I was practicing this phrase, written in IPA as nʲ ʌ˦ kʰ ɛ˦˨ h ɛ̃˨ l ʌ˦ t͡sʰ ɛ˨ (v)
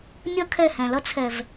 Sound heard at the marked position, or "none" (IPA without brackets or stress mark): v